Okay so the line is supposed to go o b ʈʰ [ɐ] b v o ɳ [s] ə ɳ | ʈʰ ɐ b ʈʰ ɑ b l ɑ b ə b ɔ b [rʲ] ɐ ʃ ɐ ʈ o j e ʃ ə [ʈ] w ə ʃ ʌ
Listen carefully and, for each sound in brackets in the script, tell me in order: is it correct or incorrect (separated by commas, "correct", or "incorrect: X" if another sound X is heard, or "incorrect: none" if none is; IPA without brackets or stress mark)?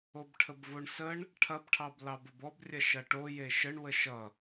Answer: incorrect: ə, correct, correct, incorrect: ɳ